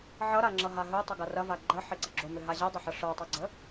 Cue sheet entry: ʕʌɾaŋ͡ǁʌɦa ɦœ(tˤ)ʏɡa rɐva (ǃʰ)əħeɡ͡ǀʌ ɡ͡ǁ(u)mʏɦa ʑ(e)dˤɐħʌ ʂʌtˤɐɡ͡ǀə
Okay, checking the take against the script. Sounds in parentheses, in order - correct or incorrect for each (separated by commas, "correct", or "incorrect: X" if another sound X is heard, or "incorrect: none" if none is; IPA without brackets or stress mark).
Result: correct, incorrect: ɡ͡ǃ, incorrect: o, incorrect: ɛ